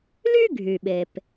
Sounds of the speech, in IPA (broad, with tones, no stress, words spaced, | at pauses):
ly˥ɡʱy˩ ɓe˩p